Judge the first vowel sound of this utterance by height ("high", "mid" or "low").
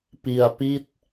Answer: high